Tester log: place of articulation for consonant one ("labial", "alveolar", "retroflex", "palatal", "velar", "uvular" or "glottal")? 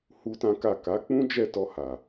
glottal